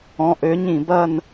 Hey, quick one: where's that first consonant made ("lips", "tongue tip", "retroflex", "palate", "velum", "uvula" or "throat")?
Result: throat